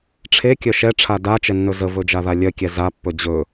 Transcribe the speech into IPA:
ʈ͡ʂʰ e kʲ œ ʃ ɛ ʈ͡ʂʰ a d a t͡ʃ ɛ nː ɵ z ə v ɵ d͡ʒ a ð a lʲ œ kʲ ɛ z a pː ɵ d͡ʑ ɵ

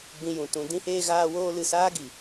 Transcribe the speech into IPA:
ɡ͡b ĩ˧ j ũ˨ t ũ˧ d ĩ˦ h eː˦ ɣ aː˦ w oː˦ l ɨ˧ s aː˦ ɡ i˨

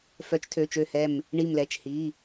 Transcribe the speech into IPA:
f œ˨˥ t͡ʃ tʰ ø˩˧˩ t͡ʃ ø˧˩ h ɛ˧˩ m | ɳ i˧˩ m l ɛ˩˧˩ t͡ʃ h i˩˧˩

